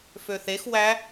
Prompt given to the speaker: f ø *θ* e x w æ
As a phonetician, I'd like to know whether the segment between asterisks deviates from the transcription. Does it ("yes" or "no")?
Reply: no